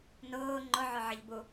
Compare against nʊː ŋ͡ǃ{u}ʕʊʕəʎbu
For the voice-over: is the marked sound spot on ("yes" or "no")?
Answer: no